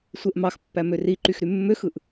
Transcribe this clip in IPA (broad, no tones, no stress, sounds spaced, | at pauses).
sʷ e ʔ m ɑ x pː æ m ø r i ǃ y x ɾ y mː ø x ɯ ʔ